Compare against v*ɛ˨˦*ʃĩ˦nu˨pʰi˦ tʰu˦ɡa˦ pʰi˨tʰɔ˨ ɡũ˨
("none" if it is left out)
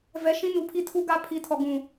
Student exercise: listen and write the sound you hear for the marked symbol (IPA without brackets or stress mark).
ɛ˨˦